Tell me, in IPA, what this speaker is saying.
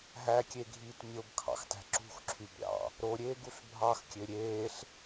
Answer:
ɦækʲeɡʱiːt mʲobkʰɑ̰xtæ̤ ǁṳxǁʰyb ɾʲɑ̰ | ɾoɾʲeːɡuɬ bʱɑxkʲø ɾʲeːɬ

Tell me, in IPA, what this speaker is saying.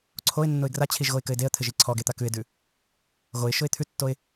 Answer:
ǀʰoɪ̯ nːʊɪ̯ɡrat͡ɕʰiʒ ɣoɪ̯kɘɪ̯deə̯t̪ʰɘʒ iǀʰɔɡe t̪akʉɪ̯dʉ | ɣoɪ̯ ʃʊɪ̯t̪ʰʉtːoɪ̯

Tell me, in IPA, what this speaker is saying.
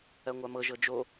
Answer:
ɜŋʷamɤ ʒɤd͡ʒo

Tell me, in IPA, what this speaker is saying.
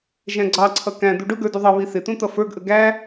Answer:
ʒæ̃ɡ͡ǀɑǀʰʌ kæ̃ d̪uɖʊɡə˞ duðˤʌβi θɪt̪ũ t̪ʌfə˞ɡʔə ɡæ

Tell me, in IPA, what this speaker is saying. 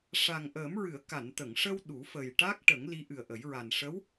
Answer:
ʂa˨˩ŋʔəː˨˩˦mɹɨ˨˩˨ə̯ ka˨˩˨nt̪ə˨˩˨ŋʂə˧w ɗu˨˩˦fə˨˩jʈa˦˥k̚ ʈə˨˩˦ŋ li˧˥ʔɨ˨˩ə̯ʔə˨˩˦jɹa˨˩n ʂə˧˥w

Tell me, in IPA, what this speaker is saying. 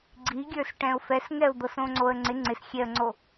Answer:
ɡ͡ǀiɡʲə˞s ʈɛ̃ʊ̯fɛsŋɛʊ̯d̪ɤs õŋ͡ǀoə̯ŋ͡ǀɪ ŋ͡ǀɪsxʲɛə̯ŋ͡ǀo

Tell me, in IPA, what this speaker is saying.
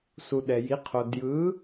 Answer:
su˨ ɗɛ˨ji˨˦qʰo˨ djɯ˨˦

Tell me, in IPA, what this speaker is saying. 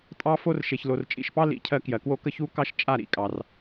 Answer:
tʼɑ˧fo˧r ʃe˨çlo˨rt͡ʃʼḭ˨ʃpɑ˦ lḭ˨˦cʰɜ˧kjɜ˨kwo˦ kə˦çu˦kɑ˦ʃ t͡ʃʼa˦˨ ɾḭ˦˨kʼɑ˨r

